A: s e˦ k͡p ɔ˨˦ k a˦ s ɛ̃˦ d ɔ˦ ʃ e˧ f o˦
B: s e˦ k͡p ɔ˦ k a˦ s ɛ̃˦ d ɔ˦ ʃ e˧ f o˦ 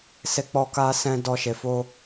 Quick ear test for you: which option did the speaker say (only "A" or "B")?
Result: B